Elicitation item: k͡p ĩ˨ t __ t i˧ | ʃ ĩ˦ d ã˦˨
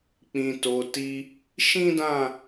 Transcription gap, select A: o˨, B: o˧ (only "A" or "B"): A